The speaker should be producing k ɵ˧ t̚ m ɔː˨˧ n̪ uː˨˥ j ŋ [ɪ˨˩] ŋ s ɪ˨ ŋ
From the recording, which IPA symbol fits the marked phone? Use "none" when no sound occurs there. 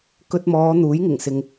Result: ɪ˨˩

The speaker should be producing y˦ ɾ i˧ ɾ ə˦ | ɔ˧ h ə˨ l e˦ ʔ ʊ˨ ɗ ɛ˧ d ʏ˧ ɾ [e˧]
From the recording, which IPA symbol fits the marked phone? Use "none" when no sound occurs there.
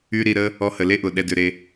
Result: e˧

